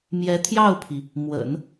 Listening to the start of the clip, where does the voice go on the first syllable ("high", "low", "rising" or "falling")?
rising